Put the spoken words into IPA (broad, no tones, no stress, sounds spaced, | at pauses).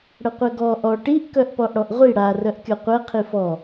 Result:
ɽ ə qʷ ɛ ɡ ɔ ʔ ɔ ʈ i ʔ k œ ʔ p ɔ ʔ ɽ ɔ ʔ ʁʷ i ɽ a r œ ʔ kʲ ɔ qʷ ɛ qʰ i f ɔ